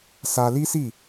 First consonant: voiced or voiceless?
voiceless